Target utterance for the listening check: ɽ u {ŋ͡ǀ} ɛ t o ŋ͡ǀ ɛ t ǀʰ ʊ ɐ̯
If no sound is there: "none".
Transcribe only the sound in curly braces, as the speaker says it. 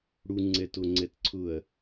ŋ͡ǀ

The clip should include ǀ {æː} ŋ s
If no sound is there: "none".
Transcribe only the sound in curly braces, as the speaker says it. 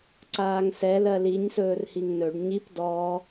aː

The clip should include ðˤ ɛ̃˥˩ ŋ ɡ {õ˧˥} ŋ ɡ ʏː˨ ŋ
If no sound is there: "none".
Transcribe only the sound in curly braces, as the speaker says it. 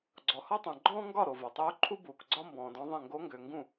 o˧˥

